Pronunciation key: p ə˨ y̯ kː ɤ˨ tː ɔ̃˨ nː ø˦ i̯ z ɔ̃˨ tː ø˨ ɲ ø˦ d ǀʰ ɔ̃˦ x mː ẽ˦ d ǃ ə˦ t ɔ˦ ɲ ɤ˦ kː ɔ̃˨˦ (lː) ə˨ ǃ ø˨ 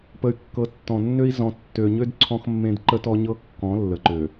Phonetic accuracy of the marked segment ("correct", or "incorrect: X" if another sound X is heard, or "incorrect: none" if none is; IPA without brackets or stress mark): correct